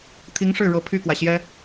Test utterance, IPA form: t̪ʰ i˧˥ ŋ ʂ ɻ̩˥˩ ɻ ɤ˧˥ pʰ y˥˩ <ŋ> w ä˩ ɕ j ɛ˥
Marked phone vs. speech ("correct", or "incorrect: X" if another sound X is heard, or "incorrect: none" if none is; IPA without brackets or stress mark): incorrect: k